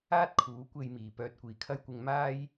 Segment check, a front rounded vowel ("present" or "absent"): present